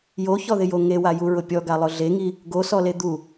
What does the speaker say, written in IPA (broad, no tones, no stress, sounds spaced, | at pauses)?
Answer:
j o ç ɔ ð ɪ j o ŋ e w a j u ɹ ʊ pʲ ɔ ɡ a lˠ ʊ ɮ e ŋ i | ɡ o s ɔ l e d̪ u